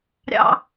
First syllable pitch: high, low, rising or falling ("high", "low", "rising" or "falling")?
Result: high